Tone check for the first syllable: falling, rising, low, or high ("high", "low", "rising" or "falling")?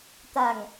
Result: low